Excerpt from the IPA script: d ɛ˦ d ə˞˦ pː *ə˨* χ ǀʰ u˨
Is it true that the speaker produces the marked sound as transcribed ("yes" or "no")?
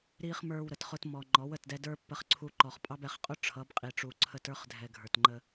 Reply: yes